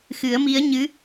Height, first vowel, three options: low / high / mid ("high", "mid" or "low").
high